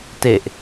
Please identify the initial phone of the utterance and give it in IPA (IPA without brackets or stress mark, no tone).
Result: t